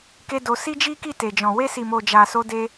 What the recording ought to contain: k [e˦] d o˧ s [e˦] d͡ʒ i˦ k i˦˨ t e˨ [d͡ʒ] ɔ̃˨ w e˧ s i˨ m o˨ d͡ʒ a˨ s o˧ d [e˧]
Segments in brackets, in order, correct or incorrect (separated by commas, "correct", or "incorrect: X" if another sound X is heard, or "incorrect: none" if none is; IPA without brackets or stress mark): correct, incorrect: i˦, correct, correct